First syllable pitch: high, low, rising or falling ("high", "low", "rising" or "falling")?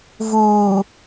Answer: low